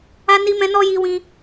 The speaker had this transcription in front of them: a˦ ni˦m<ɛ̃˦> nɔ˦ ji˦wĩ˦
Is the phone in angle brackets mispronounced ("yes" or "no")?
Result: no